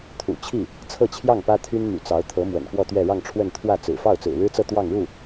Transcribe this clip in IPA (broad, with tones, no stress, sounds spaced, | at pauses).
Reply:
t̪ʰ ṵ˨˩ t͡ɕʰ i˥˩ | t͡sʰ ɤ˥˧ t͡ɕʰ j ɑ˥˩ ŋ p ä˥ t̪ʰ y˥ n m y̰˨˩ t͡s ɑ˧˥ ʊ̯ t̪ʰ ɤ˧˥ m w ə̰˨˩ n k w ɔ˥˧ t̪ ɥ ɛ˥˧ ɻ ɑ˥˧ ŋ ʈ͡ʂʰ w ə˥˧ n t̪ʰ w ä˥˩ t͡s ɹ̩˨˩ f ɑ˥˩ ʊ̯ t͡s ɹ̩˨˩ ɻ ɻ̩˥ t͡s ɤ˥˧ t̪ w ɑ˥˧ ŋ ɻ u˥˩